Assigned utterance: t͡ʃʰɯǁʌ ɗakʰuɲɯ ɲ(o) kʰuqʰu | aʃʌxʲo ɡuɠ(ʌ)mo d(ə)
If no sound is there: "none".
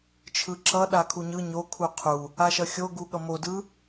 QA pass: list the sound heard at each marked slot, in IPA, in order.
o, ʌ, ɯ

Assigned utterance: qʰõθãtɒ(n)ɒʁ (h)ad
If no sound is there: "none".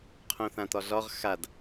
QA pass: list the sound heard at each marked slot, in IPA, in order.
ɮ, x

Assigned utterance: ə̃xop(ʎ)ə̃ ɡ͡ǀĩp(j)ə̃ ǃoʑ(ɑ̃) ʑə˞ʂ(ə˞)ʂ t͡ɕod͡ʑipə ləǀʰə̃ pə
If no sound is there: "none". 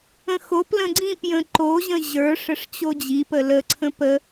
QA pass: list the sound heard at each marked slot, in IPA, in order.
l, j, ə̃, ə

